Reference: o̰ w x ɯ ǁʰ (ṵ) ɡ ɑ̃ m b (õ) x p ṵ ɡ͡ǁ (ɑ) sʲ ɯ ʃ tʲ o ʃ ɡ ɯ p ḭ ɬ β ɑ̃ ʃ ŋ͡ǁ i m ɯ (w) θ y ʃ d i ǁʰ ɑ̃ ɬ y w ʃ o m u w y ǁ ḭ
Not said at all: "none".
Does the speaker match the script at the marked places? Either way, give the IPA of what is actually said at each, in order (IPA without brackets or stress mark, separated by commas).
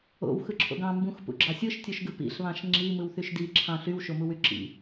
o̰, ũ, ɑ, w